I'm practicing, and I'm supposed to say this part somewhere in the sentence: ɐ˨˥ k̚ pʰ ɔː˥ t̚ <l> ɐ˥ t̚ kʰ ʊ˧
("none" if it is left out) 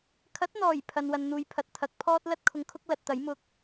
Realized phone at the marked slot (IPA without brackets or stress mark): l